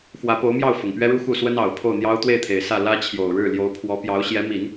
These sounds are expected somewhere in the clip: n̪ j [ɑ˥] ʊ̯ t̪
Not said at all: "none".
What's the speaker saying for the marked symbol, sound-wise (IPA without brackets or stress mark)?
ɑ˥